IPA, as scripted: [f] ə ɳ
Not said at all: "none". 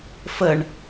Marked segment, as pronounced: f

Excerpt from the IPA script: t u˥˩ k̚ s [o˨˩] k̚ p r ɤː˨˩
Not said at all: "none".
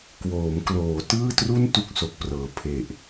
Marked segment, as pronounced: o˨˩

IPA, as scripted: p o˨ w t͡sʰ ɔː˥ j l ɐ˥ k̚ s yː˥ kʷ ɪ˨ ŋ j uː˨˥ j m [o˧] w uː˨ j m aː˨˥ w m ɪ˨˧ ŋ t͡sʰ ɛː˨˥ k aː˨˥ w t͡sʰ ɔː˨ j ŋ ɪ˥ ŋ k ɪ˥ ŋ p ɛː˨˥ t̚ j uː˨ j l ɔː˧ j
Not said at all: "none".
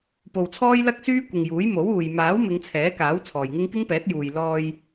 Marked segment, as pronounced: o˨˥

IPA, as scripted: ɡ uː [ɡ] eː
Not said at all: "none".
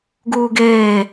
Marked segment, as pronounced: ɡ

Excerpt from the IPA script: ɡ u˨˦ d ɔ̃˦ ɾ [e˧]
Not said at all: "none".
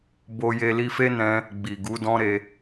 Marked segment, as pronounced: e˧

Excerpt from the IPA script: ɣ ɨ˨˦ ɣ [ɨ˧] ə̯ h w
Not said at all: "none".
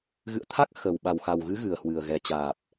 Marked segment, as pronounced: ɨ˨˩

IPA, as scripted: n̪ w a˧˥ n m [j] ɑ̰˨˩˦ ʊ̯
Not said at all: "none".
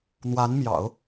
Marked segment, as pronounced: j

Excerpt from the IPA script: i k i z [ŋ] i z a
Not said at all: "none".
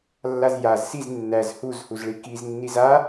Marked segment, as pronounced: nː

